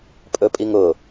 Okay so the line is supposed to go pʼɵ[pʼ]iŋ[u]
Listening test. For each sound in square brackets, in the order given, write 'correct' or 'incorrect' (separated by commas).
correct, incorrect